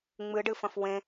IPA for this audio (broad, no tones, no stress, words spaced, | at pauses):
ŋ͡mɨɖɨfɐ̃f wẽ